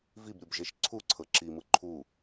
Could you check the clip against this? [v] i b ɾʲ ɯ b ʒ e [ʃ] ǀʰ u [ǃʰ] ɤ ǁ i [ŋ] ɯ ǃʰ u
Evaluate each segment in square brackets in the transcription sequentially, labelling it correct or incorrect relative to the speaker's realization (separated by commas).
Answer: correct, correct, incorrect, incorrect